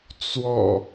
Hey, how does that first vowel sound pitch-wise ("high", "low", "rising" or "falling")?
low